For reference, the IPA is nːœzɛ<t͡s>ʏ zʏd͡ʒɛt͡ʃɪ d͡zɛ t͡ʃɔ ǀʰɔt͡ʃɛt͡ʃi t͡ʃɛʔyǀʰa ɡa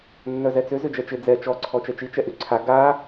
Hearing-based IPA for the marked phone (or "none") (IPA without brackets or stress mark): t͡s